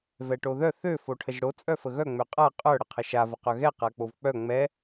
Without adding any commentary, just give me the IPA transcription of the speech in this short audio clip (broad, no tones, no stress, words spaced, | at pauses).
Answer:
vɛʈoðœ θø foʈʰəʒɽo t͡sʼœfəɣœ ŋ͡møqʼa qʼœ ɽəqʰəʃa vəqœɣɛ qak͡povk͡pœ ŋ͡mɛ